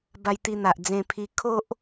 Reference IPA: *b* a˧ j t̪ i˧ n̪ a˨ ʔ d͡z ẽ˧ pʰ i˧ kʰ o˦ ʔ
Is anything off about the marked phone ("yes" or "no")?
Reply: no